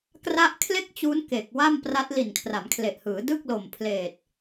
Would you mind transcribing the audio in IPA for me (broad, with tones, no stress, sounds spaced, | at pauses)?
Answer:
k r a˦˥ ʔ kʰ l e˥˩ k̚ t͡ɕ uː˦˥ n k e˨˩ k̚ w a˥˩ m p r a˦˥ t̚ l i˨˩ n kʰ r a˩˦ m kʰ l e˨˩ ʔ h ɯː˩˦ d ɯ˥˩ k̚ l o˨˩ m pʰ l eː˨˩ t̚